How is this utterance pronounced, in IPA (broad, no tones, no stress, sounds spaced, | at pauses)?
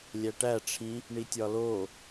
lʲ æ ʈ æ ʈ͡ʂʰ ĩ | ɳ i tʲ ɒ l o